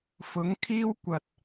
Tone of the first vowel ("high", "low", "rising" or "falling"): rising